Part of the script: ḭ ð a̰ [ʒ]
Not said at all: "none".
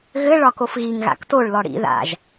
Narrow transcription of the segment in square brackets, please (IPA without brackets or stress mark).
ʒ